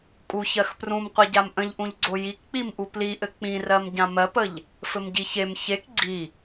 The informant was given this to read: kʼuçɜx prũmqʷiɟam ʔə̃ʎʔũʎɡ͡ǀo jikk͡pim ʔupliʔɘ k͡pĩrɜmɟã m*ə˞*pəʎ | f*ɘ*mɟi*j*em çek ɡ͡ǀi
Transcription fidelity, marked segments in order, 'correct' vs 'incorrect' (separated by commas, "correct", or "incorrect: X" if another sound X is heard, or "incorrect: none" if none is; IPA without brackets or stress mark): incorrect: ɜ, correct, incorrect: ç